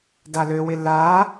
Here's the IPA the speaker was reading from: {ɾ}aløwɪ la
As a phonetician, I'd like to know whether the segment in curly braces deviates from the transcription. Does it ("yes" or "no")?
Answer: yes